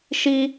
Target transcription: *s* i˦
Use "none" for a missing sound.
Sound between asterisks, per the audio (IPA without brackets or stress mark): ʃ